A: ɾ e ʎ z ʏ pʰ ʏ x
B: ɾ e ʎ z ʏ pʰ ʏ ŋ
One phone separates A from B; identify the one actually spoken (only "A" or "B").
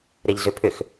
A